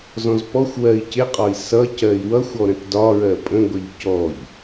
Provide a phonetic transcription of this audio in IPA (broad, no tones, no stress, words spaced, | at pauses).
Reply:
zɔ̃zpɔxʷwɜi̯ cɪqʼɒi̯ sʌ cɜi̯wʌxʷɔ ɾə̃tdɒɹɜ pʼə̃ɡʷəʎ cɔʎ